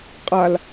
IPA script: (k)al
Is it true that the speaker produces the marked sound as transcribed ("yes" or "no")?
no